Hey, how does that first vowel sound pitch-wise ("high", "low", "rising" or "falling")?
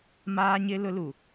high